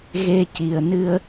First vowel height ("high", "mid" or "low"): mid